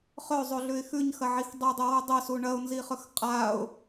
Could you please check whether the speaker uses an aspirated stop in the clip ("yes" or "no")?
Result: no